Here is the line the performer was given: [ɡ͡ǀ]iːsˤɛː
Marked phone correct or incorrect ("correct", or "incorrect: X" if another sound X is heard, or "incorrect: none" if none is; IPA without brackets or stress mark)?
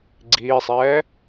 correct